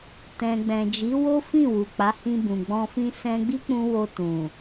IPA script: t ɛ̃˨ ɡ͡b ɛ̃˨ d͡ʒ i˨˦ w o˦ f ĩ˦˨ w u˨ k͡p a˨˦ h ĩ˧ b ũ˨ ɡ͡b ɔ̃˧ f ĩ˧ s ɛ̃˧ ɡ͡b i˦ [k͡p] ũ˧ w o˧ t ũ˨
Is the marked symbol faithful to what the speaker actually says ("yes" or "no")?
yes